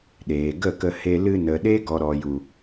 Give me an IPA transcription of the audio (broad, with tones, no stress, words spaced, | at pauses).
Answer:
ɗeː˨ɡə˦˨kə˧ he˧ lɨ˧nə˨ɗe˦ ɡɔ˨ɾɔ˨ju˨